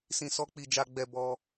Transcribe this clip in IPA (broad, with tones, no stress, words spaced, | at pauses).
sĩ˧ sɔ˦k͡pi˦˨ d͡ʒa˧ɡ͡bɛ˧bɔ˧